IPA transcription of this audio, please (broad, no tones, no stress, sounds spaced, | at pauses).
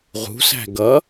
ʁ ṳ s æ̤ ɡ ʌ